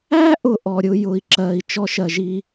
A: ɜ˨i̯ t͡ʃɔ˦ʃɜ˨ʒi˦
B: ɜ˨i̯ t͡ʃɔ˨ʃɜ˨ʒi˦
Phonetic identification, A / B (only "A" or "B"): A